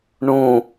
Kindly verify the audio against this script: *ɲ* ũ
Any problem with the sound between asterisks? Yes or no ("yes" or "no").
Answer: yes